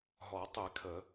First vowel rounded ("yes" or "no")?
yes